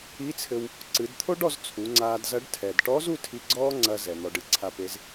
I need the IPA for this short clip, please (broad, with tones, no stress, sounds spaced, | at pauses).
i˧˥ t͡sʰ ɘ˧ w | ǀ ɨ˩˧ d t̪ʰ o˥ ɖ ɔ˧ z t͡sʰ u˩˧ ŋ͡ǀ aː˧ d z ɐ˧˥ ɖ tʰ ɛ˩ d ʈ ɔ˧˥ z u˥ tʰ i˧ ɡ͡ǀ ɔː˥ ŋ͡ǀ ɐ˧ z ɛ˩ n̪ ɔ˩ ɖ ɨ˩˧ ǀʰ a˩˧ p e˩˧ z